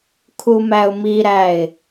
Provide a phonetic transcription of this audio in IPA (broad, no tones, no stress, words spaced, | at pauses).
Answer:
kʰumæʊ̯miɾæɪ̯